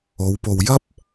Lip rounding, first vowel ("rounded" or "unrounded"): rounded